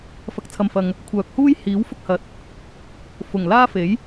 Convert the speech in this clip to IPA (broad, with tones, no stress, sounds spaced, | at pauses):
f ɐ˨ k̚ t͡sʰ ɐ˨ m f ɐ˨ ŋ | kʷʰ œː˨ k̚ h uː˥ j h iː˨˥ w f ʊ˥ k̚ h ɐ˨˥ t̚ | f ʊ˨˩ ŋ l aː˥ f e˨˥ j